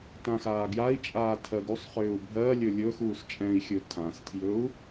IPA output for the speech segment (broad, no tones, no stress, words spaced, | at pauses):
tãxaːɡjai̯t͡ʃʼaː tʰɜɡusˤχʏːu̯ bʱɜ lʲɵlʲɵːxuːs t͡ʃʼɛ̃i̯xʲɵ tʰãstʰjɵu̯